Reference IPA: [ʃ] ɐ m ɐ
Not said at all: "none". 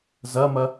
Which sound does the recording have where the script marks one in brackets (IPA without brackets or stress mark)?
z